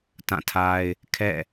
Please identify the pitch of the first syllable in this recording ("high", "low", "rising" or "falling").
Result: falling